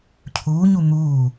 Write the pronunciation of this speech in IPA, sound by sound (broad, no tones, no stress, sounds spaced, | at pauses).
cʰ uː ɲ u n̪ uː